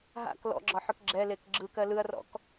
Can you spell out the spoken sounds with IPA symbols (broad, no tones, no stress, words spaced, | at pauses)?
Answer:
ɦa̰k lɔ̰ɡ͡ǁɒħʏk ɡ͡ǁɛlek ɡ͡ǁɯkɜ lɯɐ̯rɔ̰k